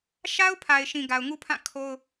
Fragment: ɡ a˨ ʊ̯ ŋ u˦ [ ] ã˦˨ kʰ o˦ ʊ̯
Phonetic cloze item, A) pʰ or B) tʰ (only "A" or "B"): A